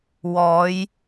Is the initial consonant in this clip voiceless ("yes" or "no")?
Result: no